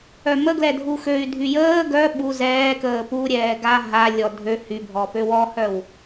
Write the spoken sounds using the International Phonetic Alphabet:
œməɡlɛ dʱuxøy̯dʱy jəː ɡœ ɓu zɛːkəː puɾʲɛː ɡaɦalʲɔ dʱø hybʱɔ pøwɔhœw

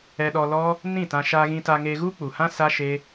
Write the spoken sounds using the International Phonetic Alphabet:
ɛ˧ɗɔ˧lɔ˦ | nĩ˦˨tã˧ ʃa˧ɣĩ˧ta˧ ŋe˧ɣu˦k͡pu˨hã˦ sa˦ʃe˦

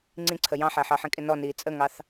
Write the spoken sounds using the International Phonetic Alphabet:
ŋ͡ǀĩǀʰə jɑ̃ħæħɑħĩ kʼɪnɔniː t͡sʼəŋɑθ

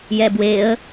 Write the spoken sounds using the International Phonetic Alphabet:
jɛbweə̯

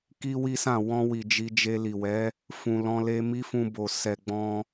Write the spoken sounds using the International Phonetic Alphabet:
ki˦wi˦sã˦˨ wɔ̃˧wi˨ d͡ʒi˧d͡ʒe˧ li˨wɛ˨˦ | fũ˨lɔ̃˧le˧ mi˦fũ˧bo˨ sɛ˨ ɡ͡bɔ̃˧

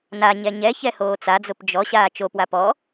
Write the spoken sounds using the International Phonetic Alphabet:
naɲɛ ɲɛçɛ hoːt͡sad͡zʊp d͡ʒɔ ɕaːt͡ʃopwa pɔ

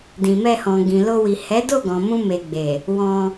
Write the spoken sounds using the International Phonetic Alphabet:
dĩ˨mɛ˧hɔ̃˨ ɡĩ˨lo˧wi˨ hɛ˨˦do˦˨ɡɔ̃˨ mũ˧me˨ɡ͡be˨ | wɔ̃˧

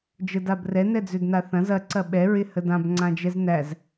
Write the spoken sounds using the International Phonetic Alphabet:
d͡ʒədabrɛ nɛd͡zødnaθɐ̃z ɐ ǀɐɓɛ ɹɪhədãb ŋ͡ǀãd͡ʒɛznæz

